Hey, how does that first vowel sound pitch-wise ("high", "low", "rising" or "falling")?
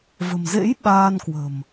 low